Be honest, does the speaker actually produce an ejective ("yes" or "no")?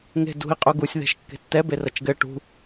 yes